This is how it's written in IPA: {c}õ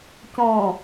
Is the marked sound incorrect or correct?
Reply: correct